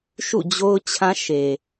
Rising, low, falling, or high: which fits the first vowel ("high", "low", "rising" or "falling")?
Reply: falling